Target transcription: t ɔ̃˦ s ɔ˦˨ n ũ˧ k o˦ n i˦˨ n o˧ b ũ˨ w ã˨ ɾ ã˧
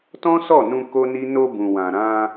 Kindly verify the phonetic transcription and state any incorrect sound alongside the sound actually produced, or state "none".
i˦˨ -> i˦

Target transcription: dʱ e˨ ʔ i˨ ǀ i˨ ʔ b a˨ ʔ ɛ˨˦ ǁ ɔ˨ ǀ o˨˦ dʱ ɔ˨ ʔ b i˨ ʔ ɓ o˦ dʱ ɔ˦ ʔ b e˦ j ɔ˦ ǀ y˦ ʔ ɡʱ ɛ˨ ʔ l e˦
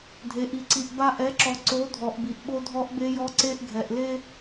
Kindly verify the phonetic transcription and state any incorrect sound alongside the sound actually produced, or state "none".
y˦ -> e˦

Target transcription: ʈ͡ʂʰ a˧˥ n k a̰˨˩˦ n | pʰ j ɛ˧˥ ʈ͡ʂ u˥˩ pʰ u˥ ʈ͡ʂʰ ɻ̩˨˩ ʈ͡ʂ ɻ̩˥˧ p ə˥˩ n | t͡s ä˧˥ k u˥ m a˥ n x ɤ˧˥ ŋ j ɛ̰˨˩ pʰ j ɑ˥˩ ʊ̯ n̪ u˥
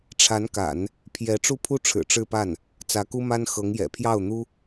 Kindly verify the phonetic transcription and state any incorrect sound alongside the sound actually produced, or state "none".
ə˥˩ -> a˥˩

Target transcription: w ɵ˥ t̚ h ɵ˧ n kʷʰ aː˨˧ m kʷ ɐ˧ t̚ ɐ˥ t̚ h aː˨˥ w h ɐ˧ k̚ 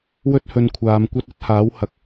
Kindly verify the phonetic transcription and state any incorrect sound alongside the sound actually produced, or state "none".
none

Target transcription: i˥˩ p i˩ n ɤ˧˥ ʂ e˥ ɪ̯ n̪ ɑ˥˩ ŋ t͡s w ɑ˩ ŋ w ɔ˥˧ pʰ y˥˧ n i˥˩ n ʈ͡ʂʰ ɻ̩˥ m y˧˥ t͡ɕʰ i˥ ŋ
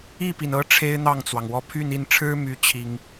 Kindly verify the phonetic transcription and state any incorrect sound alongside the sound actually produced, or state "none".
ʂ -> ʈ͡ʂʰ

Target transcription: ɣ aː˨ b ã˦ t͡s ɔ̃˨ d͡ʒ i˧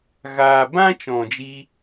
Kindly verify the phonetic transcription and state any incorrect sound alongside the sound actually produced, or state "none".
t͡s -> t͡ʃ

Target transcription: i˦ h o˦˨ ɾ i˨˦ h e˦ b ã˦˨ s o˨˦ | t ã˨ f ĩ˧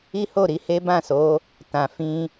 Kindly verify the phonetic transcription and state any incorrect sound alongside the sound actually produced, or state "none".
none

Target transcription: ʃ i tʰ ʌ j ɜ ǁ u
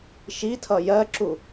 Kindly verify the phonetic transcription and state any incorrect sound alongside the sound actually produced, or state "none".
none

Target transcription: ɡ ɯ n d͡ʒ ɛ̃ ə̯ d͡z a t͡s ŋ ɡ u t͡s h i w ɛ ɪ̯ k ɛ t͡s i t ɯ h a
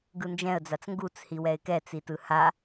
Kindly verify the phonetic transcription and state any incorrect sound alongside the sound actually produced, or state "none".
none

